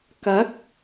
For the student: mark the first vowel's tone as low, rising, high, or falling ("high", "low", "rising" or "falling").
rising